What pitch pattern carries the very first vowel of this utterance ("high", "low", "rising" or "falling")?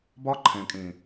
high